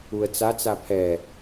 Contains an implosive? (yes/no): no